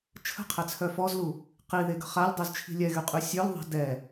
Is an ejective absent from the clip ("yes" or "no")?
no